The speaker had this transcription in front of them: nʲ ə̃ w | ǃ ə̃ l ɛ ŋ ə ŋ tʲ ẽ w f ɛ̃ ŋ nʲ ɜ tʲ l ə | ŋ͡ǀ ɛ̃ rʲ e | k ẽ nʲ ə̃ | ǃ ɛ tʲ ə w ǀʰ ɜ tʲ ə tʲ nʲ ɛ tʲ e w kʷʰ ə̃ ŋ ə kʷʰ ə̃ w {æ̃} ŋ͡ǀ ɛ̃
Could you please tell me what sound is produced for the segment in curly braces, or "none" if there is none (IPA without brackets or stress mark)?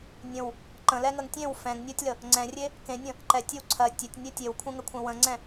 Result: ə̃